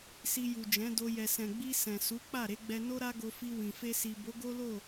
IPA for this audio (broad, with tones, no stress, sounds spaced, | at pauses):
s i˧ j u˨ d͡ʒ ɛ̃˨˦ d o˧ j ɛ˨ s ɛ̃˨ ɡ͡b i˧ s ɛ̃˨ s u˨˦ k͡p a˦˨ ɾ e˧ ɡ͡b ɛ˧ n o˦ ɾ a˦ ɡ o˧ f i˧ w ĩ˨ f e˧ s i˨ b o˨˦ ɡ o˦ l o˦˨